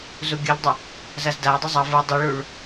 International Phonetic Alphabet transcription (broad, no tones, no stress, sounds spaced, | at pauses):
z u ɡʲ ɯ ʎ dˤ ʌ | z a z d a j dˤ ʌ zˤ ʌ v ɯ dˤ i ɭ u ɭ